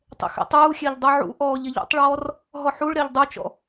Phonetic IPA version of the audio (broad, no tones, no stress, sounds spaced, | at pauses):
tˤ ḛ x ɛ̰ tˤ uː xʲ e ʎ dˤ u ʕ ṵ ʔ ɔː ʎ e ʎ ṵ tˤ ɭ ɔː r | ɦ ɔ ħ u ɭ ɾ e ʎ dˤ u t͡ʃ ɔ̰